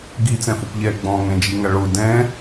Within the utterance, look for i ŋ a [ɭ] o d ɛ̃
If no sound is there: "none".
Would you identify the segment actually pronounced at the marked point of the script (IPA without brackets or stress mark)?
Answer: ɭ